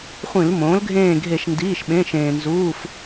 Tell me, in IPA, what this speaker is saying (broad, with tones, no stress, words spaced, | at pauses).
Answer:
χʷĩ˧˩˧lmõː˩˥lɡʱẽː˦˨ɡʱe˧˩˧ʃ ndiː˩˧˩ʃɓẽ˩˧˩ʃẽː˩nzuː˩˧˩f